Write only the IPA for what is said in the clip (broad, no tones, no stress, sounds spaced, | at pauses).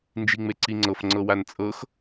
n d͡ʒ i ŋ͡m e ǀ i ŋ͡ǀ ɤ f ŋ͡ǀ ɤ w a n t͡sʼ ɤ x